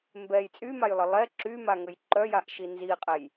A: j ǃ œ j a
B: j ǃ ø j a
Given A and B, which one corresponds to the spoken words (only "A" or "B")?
A